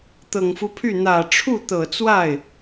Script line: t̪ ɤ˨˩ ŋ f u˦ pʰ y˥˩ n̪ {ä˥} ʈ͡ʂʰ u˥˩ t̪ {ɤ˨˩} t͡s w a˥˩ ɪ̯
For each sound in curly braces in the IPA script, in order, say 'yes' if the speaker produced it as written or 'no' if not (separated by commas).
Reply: no, yes